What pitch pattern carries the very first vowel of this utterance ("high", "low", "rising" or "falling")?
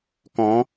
rising